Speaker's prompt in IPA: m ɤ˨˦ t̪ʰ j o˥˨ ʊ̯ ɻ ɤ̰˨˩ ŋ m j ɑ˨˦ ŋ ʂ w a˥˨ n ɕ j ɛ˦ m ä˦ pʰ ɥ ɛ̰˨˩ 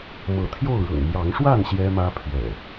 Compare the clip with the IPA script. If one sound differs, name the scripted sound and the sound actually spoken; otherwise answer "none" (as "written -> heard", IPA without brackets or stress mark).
none